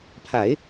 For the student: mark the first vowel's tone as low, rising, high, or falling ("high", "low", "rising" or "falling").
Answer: low